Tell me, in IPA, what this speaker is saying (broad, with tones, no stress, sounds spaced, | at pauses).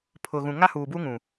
pʰ ʊ˨ ɣ ũ˨ ŋ a˦ h uː˨ b u˦ ŋ ũ˨